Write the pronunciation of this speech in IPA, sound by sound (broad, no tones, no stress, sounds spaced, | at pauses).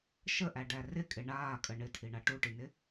ʃ ə ʔ æ ɖ æ r ɪ kʼ ɪ ɳ aː kʼ ə ɳ ɪ tʰ i ɳ a ʈ u ʈ i n ɪ